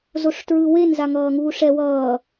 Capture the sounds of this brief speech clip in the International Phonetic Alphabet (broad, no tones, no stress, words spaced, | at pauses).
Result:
zoʂtɹɯwen zaŋʌːŋuːʂɛ wʌː